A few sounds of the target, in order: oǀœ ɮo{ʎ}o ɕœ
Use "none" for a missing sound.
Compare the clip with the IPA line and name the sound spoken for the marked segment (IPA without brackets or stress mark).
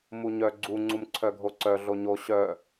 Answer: ɲ